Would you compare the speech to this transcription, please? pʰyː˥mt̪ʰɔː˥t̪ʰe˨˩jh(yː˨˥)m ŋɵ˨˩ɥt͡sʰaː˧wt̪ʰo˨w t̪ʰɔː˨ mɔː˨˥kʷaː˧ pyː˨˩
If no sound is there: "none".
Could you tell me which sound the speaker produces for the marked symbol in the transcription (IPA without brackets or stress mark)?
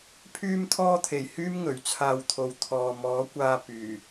yː˥